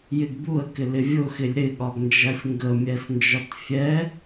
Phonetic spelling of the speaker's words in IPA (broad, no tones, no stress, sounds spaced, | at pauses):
j ɪ ɡ b u ə̯ k ɪ l ɪ vʲ ʊ x ɪ lʲ ɾ ɪ ɠ ɒ ɡ n d͡ʒ æ sʲ ŋ ɡ ə mʲ ɛ s n d͡ʒ ɒ t fʲ ɛ